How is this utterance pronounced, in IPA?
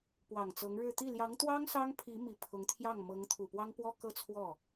p w ɑ˨˩ ŋ t͡s ɤ˧˥ ŋ ɻ ɻ̩˥˧ t̪ i˥˩ l j ɑ˧˥ ŋ t̪ w ɑ˥ ŋ s ɑ˥ ŋ pʰ i˧˥ m i˨˩ pʰ ʊ˧˥ ŋ t̪ʰ j ɑ˥˩ ŋ m ɤ˧˥ ŋ t̪ʰ u˨˩ p w ɑ˥ ŋ p w ɔ˥ k ɤ˥ t͡sʰ w ɔ˥˩

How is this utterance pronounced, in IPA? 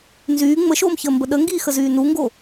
n z yː ŋ͡m ə ʃ oː m ç əː m b ə ɗ ə ŋ ɡ iː x ə z yː n u ŋ ɡ o

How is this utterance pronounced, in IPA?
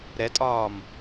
ɾ ɛ tʼ ɒː m

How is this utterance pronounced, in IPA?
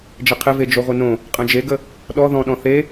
d͡ʒ ɪ qʰ ɪ v e d͡ʒ o ʁʷ ɪ n õ | qʼ ə̃ d͡ʒ e ɡ ə | ɗ ɔ ð ɔ̃ ɗ ɔ̃ θ e

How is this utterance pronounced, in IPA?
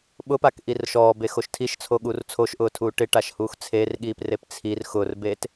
ɓ ʊ p a k ʔ i r ʃ ɔː b e x o ʃ tʰ i ʃ t͡sʰ o ɠ uː r t͡sʰ o ʃ ʔ ʊː tʰ uː ʈ ɪ ʈ a ʃ h uː x t͡sʰ e r ɠ iː p r e p t͡sʰ i r x ʊ r b eː t

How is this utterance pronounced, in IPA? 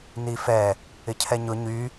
n i f ɛ | ɪ cʰ ɛ ɲ ʊ ɲ y

